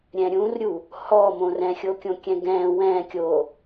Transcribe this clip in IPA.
ɾʲ ɛ̃ ɾʲ ũ r ɾʲ u | h ɔ m õ r ɛ̃ xʲ o kʲ õ kʲ ɛ̃ ɡ ɛ̃ w ɛ̃ kʲ o

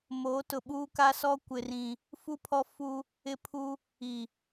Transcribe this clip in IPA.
m oː˨˦ t ʊ˨ ɓ uː˦ k a˦ s ɔ˦ kʷ ɪ˦ r ĩ˦ | f u˦ pʰ ɔ˦ f u˦ | ɪ˦ pʰ u˦ | i˨

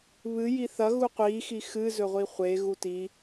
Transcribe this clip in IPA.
β ɨ j i θ ɐ ɣ u qʷ i x i x ɨ z ɵ ʁʷ i χʷ e ɣ u t i

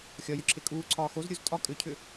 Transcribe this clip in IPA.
xʲ ɒ j ʏ ǁʰ e kʼ uː ǀʰ ɒː x o z ɾʲ u z tʼ ɒ kʼ ʏ cʰ ʏ

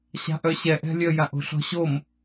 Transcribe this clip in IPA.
ɕ a̤ ʔ œ ɕ ɛ ʔ ɛ̤ lʲ ə j a ʔ o̤ ɬ ɔ̤ ɕ o m

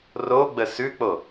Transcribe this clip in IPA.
r o ɡ͡b ə s ʉ k͡p o

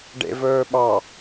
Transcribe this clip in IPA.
ɖ ḛ v ɵː ɓ ɑ

